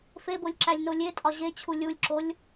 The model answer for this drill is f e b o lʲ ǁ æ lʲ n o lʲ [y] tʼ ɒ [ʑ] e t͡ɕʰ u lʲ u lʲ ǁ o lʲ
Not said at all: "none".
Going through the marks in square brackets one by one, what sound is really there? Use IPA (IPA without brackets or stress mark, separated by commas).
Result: e, ʑ